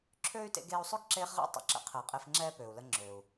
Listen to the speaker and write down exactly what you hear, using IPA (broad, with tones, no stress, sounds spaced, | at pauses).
ǁʰ øː˥ y̯ t ḛ˦ ɡ eː˦ u̯ sˤ ø˥ ɡ ǁ eː˦ χ ʁ ɛ̰˥ tˤ ə̰˨ ǁ ə̰˦ qʰ əː˩ qʼ e˦ f ŋ͡ǁ ɛː˥ p øː˩ u̯ l ə˦ ŋ͡ǁ øː˩ u̯